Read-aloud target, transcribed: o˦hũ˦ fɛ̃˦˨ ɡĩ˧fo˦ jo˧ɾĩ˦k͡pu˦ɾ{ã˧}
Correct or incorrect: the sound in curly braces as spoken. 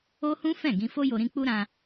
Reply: correct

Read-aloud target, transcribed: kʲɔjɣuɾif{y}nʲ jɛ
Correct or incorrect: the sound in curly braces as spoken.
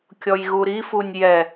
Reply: incorrect: u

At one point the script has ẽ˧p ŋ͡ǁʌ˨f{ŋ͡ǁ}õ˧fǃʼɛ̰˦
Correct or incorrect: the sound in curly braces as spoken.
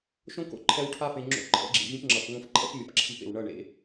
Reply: incorrect: ŋ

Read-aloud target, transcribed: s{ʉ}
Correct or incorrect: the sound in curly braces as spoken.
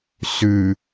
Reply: correct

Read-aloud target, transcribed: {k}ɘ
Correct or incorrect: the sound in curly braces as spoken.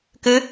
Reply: correct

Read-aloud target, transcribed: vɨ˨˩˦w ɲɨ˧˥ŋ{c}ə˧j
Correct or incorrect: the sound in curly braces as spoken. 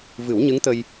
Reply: incorrect: t̪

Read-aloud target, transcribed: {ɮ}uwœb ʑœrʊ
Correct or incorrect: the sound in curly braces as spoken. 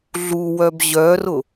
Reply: correct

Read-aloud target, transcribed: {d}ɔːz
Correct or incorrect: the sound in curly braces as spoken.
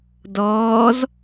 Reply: correct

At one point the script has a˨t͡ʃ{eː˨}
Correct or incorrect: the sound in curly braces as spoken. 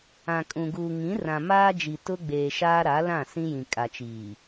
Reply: incorrect: iː˨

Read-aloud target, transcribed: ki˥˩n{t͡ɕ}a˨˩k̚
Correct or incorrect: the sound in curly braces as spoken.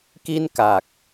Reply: incorrect: k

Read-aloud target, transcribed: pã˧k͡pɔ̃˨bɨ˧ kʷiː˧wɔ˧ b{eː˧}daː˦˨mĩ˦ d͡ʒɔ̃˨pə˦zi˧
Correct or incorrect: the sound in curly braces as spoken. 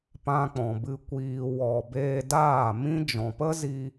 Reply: correct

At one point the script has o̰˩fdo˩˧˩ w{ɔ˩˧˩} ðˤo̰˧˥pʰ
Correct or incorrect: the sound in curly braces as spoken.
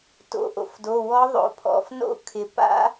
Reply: incorrect: ɔ˧˥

